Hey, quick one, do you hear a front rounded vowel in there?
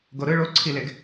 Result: no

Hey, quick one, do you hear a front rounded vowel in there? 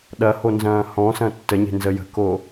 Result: no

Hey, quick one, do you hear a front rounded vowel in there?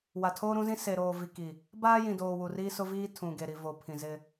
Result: no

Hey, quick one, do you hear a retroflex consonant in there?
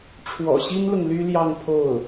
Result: yes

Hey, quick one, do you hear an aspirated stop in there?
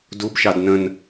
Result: no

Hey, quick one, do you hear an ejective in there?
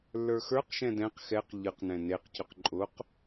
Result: yes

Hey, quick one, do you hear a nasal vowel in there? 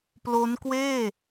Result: no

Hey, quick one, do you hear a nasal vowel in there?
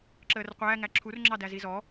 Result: no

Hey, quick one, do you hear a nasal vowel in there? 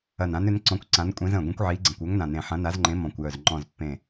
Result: yes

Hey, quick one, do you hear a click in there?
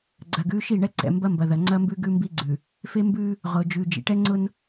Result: yes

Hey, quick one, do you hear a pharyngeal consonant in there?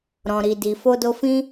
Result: no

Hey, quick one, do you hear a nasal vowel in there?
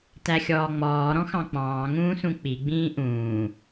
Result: yes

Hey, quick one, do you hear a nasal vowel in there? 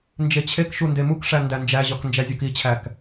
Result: no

